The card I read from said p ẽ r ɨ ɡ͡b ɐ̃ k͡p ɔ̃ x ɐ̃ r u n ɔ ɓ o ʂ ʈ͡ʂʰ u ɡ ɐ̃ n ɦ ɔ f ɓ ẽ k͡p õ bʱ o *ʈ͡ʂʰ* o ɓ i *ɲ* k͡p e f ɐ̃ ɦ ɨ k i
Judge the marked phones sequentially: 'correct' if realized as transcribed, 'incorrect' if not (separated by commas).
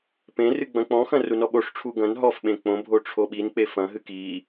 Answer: correct, incorrect